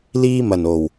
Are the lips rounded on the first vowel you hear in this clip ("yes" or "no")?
no